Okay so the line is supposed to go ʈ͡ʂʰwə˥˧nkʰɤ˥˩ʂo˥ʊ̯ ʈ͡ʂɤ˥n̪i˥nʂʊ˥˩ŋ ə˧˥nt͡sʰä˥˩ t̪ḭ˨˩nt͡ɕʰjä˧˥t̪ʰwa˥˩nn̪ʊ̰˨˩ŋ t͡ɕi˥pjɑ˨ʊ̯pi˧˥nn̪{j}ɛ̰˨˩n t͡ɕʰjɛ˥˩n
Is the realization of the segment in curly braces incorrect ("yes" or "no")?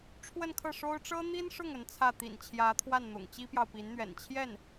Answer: yes